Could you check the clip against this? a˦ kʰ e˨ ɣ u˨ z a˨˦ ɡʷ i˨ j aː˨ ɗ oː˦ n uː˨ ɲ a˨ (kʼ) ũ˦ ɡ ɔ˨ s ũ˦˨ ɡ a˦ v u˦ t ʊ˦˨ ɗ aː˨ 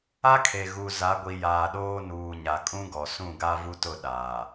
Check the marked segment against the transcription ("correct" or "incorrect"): correct